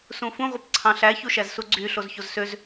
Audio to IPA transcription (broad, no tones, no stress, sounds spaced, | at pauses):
s ũ f ũ ʁʷ ɯ p ǀʰ ɑ̃ ɬ æ ç u ʃ æ z s u ɡ͡ǀ y ɬ o z ç o z s ø z